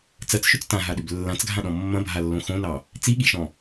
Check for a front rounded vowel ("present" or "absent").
present